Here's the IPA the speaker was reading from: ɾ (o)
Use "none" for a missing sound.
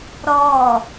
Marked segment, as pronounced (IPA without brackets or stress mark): ɔ